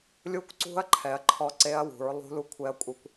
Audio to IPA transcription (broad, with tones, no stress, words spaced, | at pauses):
lʲu˦˥kʷǀṳ˦˥ɐ̯ǃʰɛ˨˦ɐ̯ ǃʰɔ˦˥ǀe˦˥ɐ̯wṳ˨˦ɹlˠṳ˦˥ lu˦˥kʷʰɛ˦˥ɐ̯kʷʼi˦˥kʷ